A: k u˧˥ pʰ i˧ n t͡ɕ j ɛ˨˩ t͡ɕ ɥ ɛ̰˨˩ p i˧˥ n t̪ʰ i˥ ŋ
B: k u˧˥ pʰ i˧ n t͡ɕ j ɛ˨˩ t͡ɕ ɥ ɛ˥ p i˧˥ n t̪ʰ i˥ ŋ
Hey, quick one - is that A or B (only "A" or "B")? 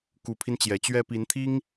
B